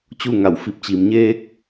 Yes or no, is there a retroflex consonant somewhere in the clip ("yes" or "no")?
no